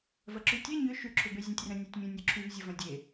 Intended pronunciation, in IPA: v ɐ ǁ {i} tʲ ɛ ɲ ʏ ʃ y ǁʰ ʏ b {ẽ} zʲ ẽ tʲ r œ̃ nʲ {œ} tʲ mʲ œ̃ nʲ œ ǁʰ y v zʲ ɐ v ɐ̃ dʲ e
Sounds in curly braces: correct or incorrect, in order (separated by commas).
incorrect, incorrect, correct